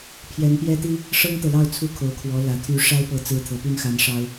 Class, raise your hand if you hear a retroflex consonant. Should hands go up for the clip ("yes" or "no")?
yes